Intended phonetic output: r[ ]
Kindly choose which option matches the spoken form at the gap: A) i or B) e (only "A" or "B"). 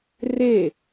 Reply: B